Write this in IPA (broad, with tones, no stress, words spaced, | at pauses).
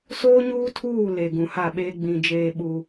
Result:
soː˦ɲuː˦tʰuː˦˨ le˨ ɡũ˨ha˦˨ɓeː˦ ɡ͡bĩ˨ d͡ʒeː˦ɓu˦